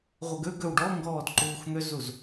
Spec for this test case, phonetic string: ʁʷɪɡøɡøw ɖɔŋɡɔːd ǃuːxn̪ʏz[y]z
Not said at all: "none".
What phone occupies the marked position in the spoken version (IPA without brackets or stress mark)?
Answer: u